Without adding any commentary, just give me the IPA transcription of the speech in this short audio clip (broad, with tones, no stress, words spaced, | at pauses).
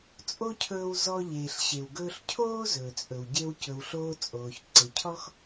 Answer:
t͡sʼo˥cʰɵː˧w zɔ˧ʎeː˩ɬ ɕe˩wɡɵː˧ɬ cʰoː˥ zɵː˩t͡sʼɵ˩wɟe˧w cɵ˩wɬoː˧ t͡sʼoː˩çǀe˩cʰɔ˥x